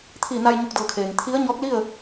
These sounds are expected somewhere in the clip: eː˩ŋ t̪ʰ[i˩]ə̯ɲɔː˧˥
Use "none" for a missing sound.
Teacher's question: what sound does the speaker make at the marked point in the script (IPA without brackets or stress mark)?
i˧˥